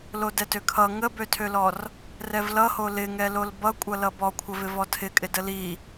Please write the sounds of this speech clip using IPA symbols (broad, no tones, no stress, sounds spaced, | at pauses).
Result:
l o d ɛ t ø kʰ ʌ ŋ ə b ø tʰ ø l ɔ r | r ɛ v l ʌ h o l ɪ ŋ ɛ l o l b ʌ kʷʼ ʌ l ʌ b ɔ kʷʰ ə v ɪ v ɔ tʰ ɪ kʼ ɪ d ə l i